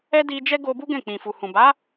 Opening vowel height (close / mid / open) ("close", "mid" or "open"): mid